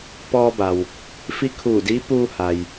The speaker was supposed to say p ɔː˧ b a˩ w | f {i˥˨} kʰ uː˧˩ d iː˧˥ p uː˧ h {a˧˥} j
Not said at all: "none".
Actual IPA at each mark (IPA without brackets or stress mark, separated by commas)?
i˧˥, a˩